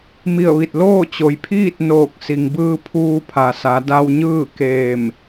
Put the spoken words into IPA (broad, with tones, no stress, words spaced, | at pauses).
mi˧˩ə̯ʋi˧˩t̚ loː˥˨t͡ɕo˩jpʰiː˥˨t̚ noː˧˩k̚ si˩ŋbɯː˧pʰuː˧pʰa˩ sa˩˧da˧wɲɯː˥˨ keː˧˩m